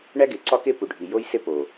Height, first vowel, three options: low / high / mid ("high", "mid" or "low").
low